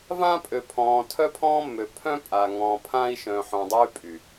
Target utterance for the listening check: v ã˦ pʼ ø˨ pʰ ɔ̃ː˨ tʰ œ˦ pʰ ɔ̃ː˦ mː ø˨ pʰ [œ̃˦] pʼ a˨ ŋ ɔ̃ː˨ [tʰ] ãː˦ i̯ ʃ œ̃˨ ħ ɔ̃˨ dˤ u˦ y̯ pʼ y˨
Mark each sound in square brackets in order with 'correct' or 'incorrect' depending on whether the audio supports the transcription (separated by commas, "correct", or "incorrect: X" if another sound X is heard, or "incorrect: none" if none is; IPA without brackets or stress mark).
correct, incorrect: pʰ